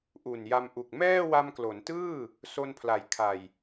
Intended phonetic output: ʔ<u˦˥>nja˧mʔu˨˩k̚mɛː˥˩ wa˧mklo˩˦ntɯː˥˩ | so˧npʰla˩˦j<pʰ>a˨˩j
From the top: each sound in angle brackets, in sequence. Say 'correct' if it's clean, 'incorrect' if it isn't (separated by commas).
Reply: incorrect, incorrect